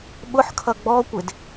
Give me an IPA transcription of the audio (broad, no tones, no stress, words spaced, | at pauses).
ɓʊħkʰʌ ɡ͡bɔkʷɪd